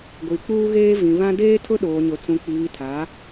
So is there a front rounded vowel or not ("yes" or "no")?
no